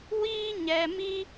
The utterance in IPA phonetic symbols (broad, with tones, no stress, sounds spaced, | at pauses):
w iː˦ ɲ ɛ˧ m i˦